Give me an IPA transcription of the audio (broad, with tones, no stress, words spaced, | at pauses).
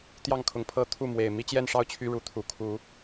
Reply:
t̪jɑ˥˨ŋkʰʊ˨˦ŋ pʰɤ˦t̪ʰu˥˨mwe˨˩ɪ̯ mi˦t͡ɕjɛ˥˨nʂɑ˥˨ʊ̯ t͡ɕʰy˦ɻu˨˦t̪ʰu˨˩ kʰu˨˦